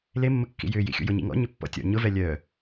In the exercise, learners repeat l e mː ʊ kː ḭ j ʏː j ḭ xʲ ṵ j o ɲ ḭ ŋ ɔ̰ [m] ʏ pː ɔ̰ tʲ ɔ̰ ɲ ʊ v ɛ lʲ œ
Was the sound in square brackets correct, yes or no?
no